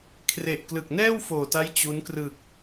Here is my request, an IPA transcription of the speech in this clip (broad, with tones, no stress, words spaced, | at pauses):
kʰre˨˩ʔklɯ˨˩k̚nɛː˥˩w foː˨˩ta˦˥j t͡ɕu˦˥n krɯ˨˩k̚